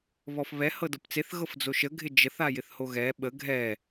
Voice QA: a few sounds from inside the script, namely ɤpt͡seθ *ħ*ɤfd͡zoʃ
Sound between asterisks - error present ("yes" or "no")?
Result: yes